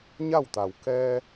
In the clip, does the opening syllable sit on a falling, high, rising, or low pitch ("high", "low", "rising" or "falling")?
falling